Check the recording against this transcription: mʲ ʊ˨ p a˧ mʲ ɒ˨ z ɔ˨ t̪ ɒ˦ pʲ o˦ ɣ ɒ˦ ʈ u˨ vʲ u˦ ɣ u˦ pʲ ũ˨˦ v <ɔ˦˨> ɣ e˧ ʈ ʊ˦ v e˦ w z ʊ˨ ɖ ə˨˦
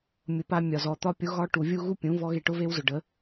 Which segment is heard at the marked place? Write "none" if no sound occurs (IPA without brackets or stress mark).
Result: ɔ˦